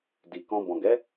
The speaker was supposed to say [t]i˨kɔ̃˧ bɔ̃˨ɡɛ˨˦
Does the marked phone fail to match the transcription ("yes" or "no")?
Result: yes